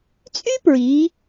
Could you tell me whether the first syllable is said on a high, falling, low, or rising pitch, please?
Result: high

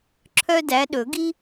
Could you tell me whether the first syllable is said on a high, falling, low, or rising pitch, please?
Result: high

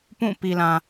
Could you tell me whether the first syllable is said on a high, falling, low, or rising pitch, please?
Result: falling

